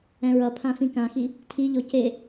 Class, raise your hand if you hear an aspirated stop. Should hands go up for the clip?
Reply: yes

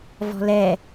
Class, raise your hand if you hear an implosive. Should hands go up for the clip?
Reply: no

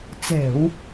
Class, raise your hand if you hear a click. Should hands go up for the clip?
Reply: no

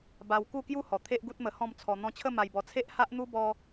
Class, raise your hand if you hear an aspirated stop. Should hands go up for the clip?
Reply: yes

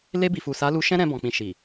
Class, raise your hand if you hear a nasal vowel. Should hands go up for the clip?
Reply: yes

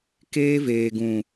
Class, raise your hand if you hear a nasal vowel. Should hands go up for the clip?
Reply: yes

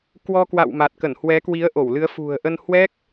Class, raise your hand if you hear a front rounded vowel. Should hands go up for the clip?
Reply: no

